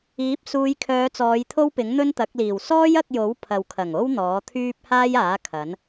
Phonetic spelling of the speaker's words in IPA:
iː˨˥ p̚ s uː˨˧ j kʰ œː˨˧ t͡s ɔː˨˧ j t̪ʰ o˥ w p ɪ˨˥ ŋ n̪ ɵ˥ n t̪ ɐ˨˥ k̚ l iː˨˩ w s ɔː˥ j ɐ˧ k̚ j o˨˥ w pʰ ɐ˨ w kʰ ɐ˨˩ ŋ o˥ w n̪ ɔː˨˥ t̪ʰ yː˥ p̚ h aː˥ j aː˨˥ kʰ ɐ˨˥ n

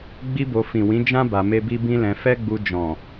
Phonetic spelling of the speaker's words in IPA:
ɡ͡b i˦ b o˧ f ĩ˨ w ĩ˨˦ d͡ʒ ã˦ b a˧ m e˦ b i˦ b ĩ˦ l ɛ̃˧ f ɛ˦ ɡ͡b u˧ d͡ʒ ɔ̃˨

